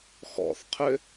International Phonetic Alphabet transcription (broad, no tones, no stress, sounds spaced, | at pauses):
x ɔ̰ θ qʰ ʏ